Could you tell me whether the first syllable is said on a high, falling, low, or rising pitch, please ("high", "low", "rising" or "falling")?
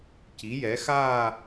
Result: rising